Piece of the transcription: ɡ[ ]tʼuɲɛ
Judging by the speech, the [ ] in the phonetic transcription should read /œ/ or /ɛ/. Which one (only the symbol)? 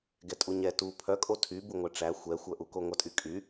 ɛ